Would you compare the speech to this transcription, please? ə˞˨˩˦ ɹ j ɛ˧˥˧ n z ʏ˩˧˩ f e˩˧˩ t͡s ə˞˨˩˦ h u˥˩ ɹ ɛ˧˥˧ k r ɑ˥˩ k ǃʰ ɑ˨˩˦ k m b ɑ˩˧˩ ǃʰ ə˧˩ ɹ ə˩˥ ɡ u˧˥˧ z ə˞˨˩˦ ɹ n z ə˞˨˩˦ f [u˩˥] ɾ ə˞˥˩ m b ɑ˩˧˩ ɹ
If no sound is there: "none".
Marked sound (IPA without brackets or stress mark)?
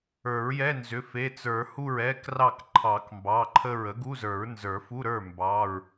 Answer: u˧˥˧